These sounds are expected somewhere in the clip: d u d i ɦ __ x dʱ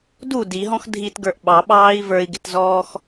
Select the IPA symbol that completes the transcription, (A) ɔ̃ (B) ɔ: A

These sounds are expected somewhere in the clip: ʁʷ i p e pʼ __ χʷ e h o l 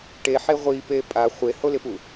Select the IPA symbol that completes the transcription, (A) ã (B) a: B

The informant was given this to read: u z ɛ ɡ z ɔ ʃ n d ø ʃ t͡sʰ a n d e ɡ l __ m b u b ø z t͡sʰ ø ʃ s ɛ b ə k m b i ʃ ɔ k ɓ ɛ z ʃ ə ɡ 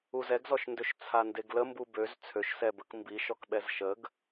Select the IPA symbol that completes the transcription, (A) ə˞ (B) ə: B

